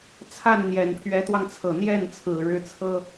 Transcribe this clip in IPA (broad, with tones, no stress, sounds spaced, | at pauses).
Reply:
t͡sʰ a˥˩ n n̪ j ɛ˨˩ n pʰ ɥ ɛ˧˥ t̪ w ɑ˧ ŋ t͡sʰ ɤ˨˩ n̪ j ɛ˥˩ n t͡sʰ ɹ̩˨˩ ɻ ɻ̩˥˩ t͡sʰ ɤ˥